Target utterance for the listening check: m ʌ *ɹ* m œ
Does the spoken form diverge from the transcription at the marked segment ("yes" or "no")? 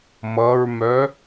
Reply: no